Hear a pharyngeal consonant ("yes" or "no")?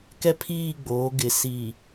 no